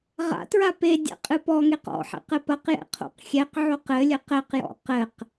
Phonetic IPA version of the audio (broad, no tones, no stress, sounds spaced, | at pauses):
ʁ a̰ t ɹ a p e dʲ a̰ qʼ ɨ p ɔ ŋ e q ɔ̰ ħ ɛ̰ q ɘ p ɐ q j ɛ̰ qʰ o̰ q xʲ ɛ q ʕ o q ɘ lʲ ɘ q ɛ q j ɔ̰ q ɘ q